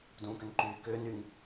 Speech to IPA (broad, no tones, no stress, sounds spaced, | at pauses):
d ũː k ʏ n ǃ yː k ʏː n y ŋ